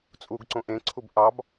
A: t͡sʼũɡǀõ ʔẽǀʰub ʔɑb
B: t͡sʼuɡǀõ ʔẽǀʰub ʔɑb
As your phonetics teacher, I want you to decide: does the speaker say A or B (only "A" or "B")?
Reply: B